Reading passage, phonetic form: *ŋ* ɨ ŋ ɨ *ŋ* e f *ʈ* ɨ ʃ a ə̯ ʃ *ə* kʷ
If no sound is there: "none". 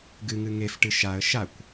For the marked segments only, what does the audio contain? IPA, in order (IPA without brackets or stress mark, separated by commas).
ɡ, ŋ, ʈ, a